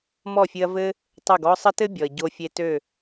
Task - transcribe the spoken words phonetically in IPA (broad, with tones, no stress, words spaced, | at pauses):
mɔ˦˨fʲɨ˧ɐ̯ vɘ˦ | tˤø˦˨ɡɔ˦ sˤə˦tɘ˦ bʲɔ˨ɐ̯ɟo˧fʲe˧ tø˦˨